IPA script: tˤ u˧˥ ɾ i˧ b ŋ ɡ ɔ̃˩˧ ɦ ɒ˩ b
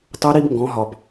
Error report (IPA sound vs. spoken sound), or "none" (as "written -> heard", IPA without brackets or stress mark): none